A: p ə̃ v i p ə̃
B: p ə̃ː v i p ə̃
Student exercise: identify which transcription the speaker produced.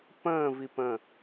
B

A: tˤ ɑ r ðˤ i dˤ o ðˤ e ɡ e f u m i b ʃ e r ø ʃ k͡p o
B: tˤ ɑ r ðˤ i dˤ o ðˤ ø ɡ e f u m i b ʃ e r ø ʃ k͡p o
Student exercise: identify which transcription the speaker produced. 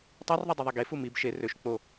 A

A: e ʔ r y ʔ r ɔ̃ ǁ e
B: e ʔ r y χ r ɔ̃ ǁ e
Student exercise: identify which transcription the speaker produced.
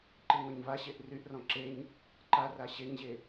A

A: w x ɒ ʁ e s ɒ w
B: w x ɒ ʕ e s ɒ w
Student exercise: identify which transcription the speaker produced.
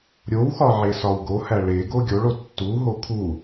B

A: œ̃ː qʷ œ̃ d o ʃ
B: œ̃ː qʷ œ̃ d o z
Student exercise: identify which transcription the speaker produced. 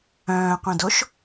A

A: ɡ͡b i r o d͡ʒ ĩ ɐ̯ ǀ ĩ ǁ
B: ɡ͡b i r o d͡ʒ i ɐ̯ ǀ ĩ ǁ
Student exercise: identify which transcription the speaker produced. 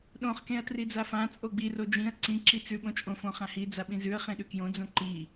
A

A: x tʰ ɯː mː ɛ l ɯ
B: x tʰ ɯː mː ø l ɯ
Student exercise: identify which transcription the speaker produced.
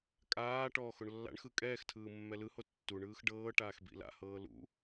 A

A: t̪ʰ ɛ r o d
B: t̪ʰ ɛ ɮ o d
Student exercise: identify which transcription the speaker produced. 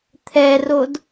A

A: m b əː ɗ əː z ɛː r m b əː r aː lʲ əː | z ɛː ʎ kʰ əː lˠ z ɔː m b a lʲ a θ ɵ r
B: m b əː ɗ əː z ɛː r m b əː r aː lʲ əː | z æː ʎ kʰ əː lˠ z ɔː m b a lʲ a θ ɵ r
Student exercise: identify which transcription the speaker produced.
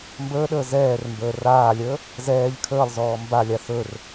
A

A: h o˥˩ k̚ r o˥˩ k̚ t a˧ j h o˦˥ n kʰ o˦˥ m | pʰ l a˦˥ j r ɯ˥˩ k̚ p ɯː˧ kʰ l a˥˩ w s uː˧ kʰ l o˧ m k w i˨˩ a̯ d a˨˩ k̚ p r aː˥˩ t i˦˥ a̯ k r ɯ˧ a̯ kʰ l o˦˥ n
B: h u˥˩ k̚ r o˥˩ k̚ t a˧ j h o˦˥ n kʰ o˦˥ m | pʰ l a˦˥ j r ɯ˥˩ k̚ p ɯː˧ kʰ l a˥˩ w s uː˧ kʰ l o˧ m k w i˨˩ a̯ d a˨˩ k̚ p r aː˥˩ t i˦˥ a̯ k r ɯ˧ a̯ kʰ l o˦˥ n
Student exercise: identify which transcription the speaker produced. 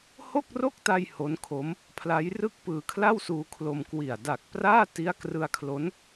A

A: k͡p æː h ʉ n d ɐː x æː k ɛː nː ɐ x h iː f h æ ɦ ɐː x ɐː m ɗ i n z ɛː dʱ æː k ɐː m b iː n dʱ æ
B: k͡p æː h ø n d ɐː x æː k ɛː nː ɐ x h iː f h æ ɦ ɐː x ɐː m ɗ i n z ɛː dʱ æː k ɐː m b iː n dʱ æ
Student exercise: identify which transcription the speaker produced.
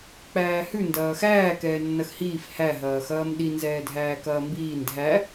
A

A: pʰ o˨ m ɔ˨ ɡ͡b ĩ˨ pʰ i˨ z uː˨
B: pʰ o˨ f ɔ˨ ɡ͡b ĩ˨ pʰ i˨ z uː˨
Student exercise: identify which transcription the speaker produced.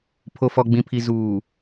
B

